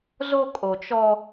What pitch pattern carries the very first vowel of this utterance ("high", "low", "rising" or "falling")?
high